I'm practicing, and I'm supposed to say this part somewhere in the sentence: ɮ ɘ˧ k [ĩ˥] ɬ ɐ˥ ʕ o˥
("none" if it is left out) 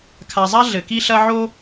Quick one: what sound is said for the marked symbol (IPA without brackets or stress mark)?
i˥